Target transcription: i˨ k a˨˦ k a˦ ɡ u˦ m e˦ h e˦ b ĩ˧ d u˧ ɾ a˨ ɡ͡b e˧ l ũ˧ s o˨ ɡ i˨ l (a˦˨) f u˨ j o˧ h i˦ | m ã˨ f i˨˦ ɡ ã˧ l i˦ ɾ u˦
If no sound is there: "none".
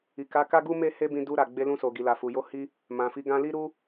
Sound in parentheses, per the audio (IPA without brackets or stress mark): a˨